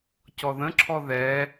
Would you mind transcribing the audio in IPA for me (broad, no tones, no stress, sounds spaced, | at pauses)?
c ɔ ð ə̃ ǁʰ ɔ ð ɛ